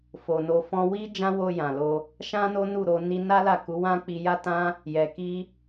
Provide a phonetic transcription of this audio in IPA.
f o˨ n o˧ f ɔ̃˦ w i˦ d͡ʒ ã˦ w o˧ j ã˨ l o˧ | ʃ ã˦ n o˦ n u˦˨ ɾ o˧ n i˦ n a˦ l a˦˨ k u˨˦ w ã˦ k͡p i˧ j a˦ t ã˦ | j ɛ˨ k i˧

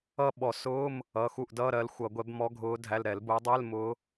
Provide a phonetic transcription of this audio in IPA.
ʌ˥˧ ɓ ɔ˧˩˧ s ʊː˧˥˧ m | ʌ˩˧˩ x u˧˩ ʔ d ʌː˧˥˧ ɾ ɜ˨˦ l xʷ ʌ˧˩˧ ɡʷ ɛ˨˦ b m ɔ˨˦ ɡʱ ʊː˨˦ dʱ æ˩˧˩ l ɾ ɛ˧˩˧ l b ʊː˨˦ dˤ ɛ˧˥˧ l m ʊː˨˦

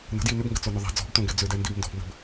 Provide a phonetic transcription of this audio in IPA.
n ə̤ d j i n ʏ b ŋ ɡ ə t͡s o n ʏ ðˤ ɛ̤ d͡z ɔ̤ b t õ ɡ ɛ d͡z ʏ d ɛ n d i b n d ɔ̤ b n ə̤ b

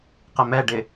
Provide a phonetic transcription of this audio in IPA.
q ɪ m ɛ ɖ ɪ

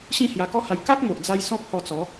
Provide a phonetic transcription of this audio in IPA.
ɕ ĩ˥˧ h j a˧ k ɔ˦ h a˧ j k a˦ k̚ m o˨ ʔ d͡z a˧ j s ɔ̃˦ p̚ h ɔ˧ t͡s ɔ˨˦

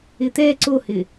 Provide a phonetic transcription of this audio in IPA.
ɪ t̪ ɛ ǀ o h ɪ

